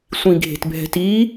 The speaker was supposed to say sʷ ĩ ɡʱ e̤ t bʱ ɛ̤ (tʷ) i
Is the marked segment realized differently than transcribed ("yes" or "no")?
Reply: yes